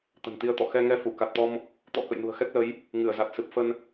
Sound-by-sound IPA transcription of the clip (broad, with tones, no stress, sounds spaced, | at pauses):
t̪ ə̤˨˩ n t̪ i˧ ə̯ t̪ ɔ̰˧˨ x ɛ˧ ŋ ɛ˧ f u˧˩ k a˨˩ t̚ t̪ ɔ˧ m | t̪ ɔ̰˧˥ k ə̰˧˨ j n ṳ˨˩ ə̯ x ɛ˦˥ k̚ l ə˨˦ j | ŋ ɨ˧˩ ə̯ z a˨˩ t̚ s ɨ˨˩ p̚ f ə˧ n